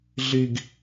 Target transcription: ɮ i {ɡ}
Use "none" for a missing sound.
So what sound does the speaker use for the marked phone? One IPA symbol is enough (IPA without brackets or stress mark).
ɡ